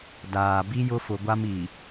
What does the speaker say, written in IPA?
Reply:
daː˨ bi˦jʊ˦fʊ˨ɡʷa˦m i˨

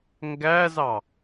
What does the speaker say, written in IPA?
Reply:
ŋɡæzɑ

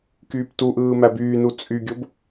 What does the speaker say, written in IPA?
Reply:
kyːptuʔɯː mæbyːnu t͡sʼyɡʲob

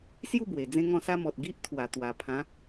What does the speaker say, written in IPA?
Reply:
sju˥˧ bwe˨˩d͡zẽ˥˧ŋɔ̃˥˧sa˦ mɔ˨t̚ ɡi˦ʔt̪ʰwa˨˩ t̪wa˨˩pʰã˨˦

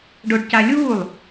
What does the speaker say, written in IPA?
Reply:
ɖoɖcalʲuːlˠ

